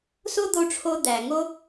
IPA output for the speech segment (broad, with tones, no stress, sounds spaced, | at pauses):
s o˦ d̪ o˧ ʈ͡ʂʰ o˧ d̪ æ˨ ŋ o˦